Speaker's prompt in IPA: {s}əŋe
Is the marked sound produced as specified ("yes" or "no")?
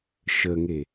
no